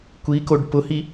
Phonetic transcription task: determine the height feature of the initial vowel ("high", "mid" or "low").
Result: high